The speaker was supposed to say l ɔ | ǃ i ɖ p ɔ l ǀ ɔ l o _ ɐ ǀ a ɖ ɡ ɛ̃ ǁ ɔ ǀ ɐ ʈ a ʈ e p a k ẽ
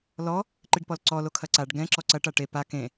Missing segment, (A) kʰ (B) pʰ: A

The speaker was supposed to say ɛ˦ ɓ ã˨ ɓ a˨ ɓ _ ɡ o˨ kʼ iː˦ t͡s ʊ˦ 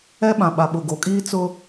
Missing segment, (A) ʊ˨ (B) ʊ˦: A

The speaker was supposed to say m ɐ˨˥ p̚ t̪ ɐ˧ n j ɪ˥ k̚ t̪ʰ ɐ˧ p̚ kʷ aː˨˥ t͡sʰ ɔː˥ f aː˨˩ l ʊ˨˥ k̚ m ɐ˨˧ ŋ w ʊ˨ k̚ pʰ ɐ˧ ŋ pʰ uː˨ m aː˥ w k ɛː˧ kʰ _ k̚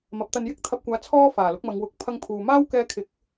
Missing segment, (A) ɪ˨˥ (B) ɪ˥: A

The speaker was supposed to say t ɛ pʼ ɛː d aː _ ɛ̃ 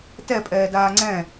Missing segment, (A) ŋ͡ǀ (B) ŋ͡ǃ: A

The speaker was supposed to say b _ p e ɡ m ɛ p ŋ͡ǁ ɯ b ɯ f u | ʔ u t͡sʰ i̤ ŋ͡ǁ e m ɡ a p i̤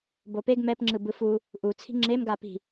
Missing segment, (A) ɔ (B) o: B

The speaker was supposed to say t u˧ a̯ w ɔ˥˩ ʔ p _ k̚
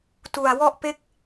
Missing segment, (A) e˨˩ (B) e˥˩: B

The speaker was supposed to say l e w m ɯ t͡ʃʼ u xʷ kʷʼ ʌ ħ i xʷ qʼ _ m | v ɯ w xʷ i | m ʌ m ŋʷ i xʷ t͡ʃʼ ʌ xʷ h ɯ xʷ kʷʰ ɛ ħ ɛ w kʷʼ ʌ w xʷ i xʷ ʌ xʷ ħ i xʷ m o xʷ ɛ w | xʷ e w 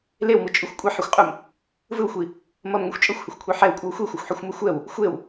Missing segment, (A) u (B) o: A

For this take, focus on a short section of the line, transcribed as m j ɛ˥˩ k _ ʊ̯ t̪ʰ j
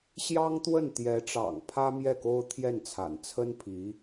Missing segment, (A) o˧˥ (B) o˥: B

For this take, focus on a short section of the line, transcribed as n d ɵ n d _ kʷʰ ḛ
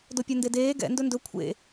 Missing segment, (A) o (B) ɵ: B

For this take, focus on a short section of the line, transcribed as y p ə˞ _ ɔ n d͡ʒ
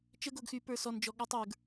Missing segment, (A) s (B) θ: A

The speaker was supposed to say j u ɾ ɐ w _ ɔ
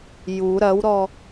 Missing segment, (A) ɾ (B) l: A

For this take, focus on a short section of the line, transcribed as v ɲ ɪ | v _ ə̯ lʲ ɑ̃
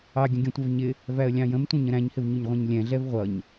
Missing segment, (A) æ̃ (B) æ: B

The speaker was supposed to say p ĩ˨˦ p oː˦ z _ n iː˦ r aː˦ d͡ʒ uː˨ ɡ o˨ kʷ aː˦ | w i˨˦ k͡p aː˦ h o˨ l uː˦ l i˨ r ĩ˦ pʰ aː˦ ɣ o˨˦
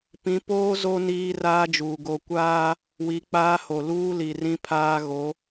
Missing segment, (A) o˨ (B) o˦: B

